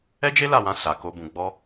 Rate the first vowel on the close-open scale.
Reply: mid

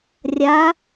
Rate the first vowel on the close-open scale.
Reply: open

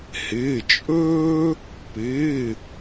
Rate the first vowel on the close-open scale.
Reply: close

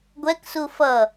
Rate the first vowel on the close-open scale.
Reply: mid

